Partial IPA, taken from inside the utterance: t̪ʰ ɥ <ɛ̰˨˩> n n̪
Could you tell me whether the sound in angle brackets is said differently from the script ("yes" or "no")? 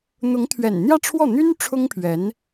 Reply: no